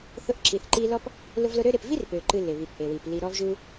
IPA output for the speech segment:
θ ʊ˦ ʔ ǁ i˨ θ ǃ i˦ l ɔ˥ p | l ʊ˦ v l ʊ˦ ɾ ø˥ ɾ ɪ˨ p v i˥ r p ø˩ ǃ ɨ˨ l ɪ˩ β i˩ p ʔ e˩ w i˩ p l i˨ ɾ ɔ˦ v ʒ u˦

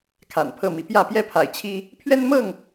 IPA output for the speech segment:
kʰ a̰˨˩ n pʰ ɤ˥˨ m i˨˦ p j ä˥˨ p j ɛ˦ pʰ a̰˨˩ ɪ̯ t͡ɕʰ i˦ | pʰ ɥ ɛ˦ n m ɤ˥˨ ŋ

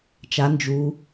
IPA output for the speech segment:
t͡ʃ a n d͡ʒ u

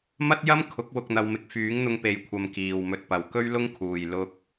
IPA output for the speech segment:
m ɐ˥ t̚ j ɐ˥ m kʰ ʊ˨˥ k̚ w ʊ˧ k̚ n̪ ɐ˧ w m ɪ˧ k̚ f yː˨˥ ŋ n̪ ʊ˧ ŋ p e˨ j kʷʰ ɐ˨ m k iː˨ w m ɵ˧ t̚ p ɐ˨ w k ɵ˥ ɥ l ʊ˥ ŋ kʰ uː˨ j l ʊ˧ k̚

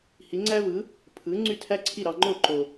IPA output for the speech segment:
h i˩˥ ŋ͡ǀ æ˥ v ɯ˩˥ | pʰ ɯ˩˥ ŋ͡ǀ y˥˩ tʰ æ˥ ǀʰ i˥˩ ɾ ɑ˧ ŋ͡ǃ o˥˩ ǃ o˩

